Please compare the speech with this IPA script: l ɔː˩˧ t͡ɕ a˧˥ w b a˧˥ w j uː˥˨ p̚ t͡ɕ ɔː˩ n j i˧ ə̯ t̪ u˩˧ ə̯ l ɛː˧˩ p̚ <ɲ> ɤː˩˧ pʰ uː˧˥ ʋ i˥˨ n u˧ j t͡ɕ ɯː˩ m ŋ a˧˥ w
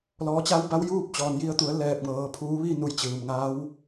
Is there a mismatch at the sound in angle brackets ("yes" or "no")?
yes